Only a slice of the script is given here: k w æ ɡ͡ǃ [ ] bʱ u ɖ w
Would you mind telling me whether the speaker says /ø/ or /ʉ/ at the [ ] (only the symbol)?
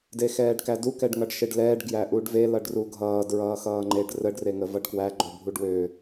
ø